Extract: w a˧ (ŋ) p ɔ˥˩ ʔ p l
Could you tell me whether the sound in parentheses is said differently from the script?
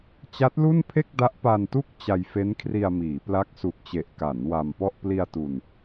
yes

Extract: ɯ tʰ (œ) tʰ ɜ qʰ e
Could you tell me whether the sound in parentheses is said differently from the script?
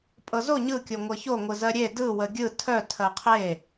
no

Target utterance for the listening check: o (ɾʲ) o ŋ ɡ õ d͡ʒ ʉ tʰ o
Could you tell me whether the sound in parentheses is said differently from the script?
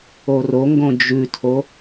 yes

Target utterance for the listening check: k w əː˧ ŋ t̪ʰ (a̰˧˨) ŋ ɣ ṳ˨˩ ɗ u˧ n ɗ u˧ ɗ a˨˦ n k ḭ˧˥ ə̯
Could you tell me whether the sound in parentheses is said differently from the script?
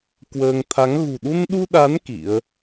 yes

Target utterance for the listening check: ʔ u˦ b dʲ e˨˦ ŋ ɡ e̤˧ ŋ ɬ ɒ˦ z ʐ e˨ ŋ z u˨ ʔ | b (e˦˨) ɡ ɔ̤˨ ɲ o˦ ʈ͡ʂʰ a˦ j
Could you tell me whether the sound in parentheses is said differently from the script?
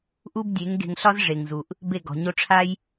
no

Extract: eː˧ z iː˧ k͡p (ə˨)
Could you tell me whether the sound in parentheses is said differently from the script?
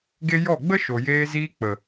no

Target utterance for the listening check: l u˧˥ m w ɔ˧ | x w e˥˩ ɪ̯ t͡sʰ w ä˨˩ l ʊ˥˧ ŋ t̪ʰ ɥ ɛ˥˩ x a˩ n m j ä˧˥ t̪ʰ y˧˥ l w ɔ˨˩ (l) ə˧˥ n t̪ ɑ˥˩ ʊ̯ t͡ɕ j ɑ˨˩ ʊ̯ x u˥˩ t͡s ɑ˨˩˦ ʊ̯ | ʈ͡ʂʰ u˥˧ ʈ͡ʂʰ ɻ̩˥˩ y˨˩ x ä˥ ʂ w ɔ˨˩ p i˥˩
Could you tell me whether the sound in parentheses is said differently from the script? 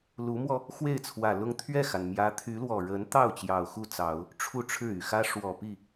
yes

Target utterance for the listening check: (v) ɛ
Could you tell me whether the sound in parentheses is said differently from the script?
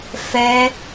yes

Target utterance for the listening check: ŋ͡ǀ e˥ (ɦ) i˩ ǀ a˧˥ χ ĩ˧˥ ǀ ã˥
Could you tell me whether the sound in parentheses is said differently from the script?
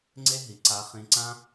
no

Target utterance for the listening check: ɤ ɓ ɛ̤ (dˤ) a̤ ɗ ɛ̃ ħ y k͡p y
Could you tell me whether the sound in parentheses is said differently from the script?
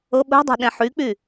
no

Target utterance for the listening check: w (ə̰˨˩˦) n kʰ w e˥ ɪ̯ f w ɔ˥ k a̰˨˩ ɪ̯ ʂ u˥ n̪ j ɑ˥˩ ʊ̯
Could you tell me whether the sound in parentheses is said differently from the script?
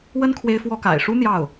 yes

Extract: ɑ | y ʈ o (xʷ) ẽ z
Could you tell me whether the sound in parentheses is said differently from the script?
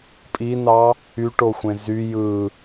no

